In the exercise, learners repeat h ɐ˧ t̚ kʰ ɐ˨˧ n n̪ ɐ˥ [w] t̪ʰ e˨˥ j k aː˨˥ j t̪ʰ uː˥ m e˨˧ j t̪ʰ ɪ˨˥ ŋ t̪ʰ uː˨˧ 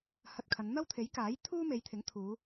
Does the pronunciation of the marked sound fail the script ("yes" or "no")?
no